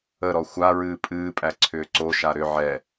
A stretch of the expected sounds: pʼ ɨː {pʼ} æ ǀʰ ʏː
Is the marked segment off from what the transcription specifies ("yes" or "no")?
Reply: no